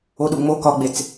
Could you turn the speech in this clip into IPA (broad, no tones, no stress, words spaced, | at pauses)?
oɗuŋ͡mo kɒɡ͡bet͡s